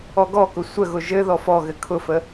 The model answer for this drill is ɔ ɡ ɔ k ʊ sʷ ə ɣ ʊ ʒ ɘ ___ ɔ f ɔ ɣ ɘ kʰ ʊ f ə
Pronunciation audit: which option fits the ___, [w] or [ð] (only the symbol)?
ð